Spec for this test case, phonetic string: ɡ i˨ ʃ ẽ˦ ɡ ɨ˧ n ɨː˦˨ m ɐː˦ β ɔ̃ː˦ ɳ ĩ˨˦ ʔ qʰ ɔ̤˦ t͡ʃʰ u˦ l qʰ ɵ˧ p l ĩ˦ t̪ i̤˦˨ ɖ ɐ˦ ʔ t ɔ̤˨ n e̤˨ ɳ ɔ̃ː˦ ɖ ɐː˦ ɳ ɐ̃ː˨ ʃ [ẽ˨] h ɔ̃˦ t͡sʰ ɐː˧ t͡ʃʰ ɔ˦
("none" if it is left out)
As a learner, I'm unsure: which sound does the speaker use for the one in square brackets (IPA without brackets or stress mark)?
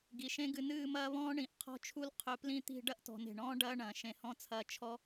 ẽ˨